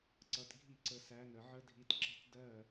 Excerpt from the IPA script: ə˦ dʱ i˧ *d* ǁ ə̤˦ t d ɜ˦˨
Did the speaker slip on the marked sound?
yes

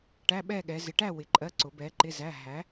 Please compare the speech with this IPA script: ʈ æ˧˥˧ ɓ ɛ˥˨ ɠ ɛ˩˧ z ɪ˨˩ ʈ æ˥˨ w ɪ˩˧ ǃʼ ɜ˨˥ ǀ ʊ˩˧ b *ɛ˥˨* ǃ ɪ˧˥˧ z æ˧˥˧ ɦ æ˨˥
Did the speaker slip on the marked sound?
yes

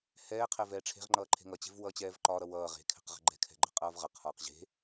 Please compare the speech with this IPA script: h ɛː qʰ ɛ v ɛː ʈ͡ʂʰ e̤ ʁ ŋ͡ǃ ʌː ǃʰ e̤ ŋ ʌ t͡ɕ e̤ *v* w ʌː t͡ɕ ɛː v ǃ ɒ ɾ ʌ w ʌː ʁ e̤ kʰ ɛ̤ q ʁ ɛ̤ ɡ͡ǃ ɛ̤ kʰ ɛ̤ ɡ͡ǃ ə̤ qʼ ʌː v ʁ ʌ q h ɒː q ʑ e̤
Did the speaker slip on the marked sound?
no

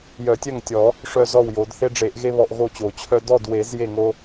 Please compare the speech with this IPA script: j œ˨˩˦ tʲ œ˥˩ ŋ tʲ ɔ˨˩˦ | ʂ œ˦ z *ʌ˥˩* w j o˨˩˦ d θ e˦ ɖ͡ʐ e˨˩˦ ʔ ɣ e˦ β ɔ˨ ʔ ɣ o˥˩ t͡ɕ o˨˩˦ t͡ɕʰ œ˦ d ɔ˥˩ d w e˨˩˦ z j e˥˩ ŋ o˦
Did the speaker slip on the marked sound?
yes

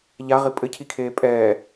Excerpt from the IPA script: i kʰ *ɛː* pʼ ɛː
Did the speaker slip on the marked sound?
yes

